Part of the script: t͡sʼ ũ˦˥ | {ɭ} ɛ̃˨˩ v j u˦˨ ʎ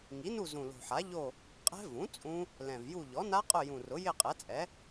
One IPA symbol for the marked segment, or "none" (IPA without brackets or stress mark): l